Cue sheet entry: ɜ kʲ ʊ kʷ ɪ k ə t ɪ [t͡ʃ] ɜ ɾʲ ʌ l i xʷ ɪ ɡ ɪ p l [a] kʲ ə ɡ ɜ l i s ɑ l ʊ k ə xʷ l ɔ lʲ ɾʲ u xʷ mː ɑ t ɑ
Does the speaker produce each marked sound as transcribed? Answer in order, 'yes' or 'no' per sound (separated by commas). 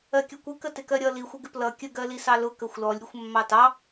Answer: no, no